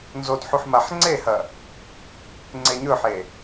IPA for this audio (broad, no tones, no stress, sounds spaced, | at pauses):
n z o d ħ u ħ m a ħ ŋ͡ǀ e h ɐ | ŋ͡ǀ e ɲ ɵ ħ e